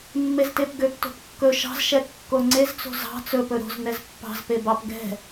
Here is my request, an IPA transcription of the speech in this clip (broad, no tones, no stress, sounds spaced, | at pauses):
mː e z t e p ɡ ø p t o̤ p kː ɵ ʃ ɑ̤ z ʃ ɛ kː o ŋ͡ǀ e z t͡s o̤ z ɑ̤ t͡s ɵ p ɵ ɾ o̤ z n ɛ z pː ɑ̤ z p e b ɑ p ɡ ɛ̤